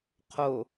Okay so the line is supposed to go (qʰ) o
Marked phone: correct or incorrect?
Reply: correct